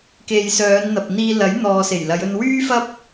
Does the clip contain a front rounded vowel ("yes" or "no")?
yes